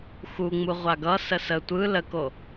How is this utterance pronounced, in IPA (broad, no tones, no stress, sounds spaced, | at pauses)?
x u ŋ͡m u ʁʷ a ɡ ʌ s ə s ə tʷ ɯ l ə k o